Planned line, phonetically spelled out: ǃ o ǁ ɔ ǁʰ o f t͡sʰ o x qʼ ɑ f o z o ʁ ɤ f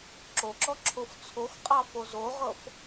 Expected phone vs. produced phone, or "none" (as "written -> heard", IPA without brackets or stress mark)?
ǃ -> ǁ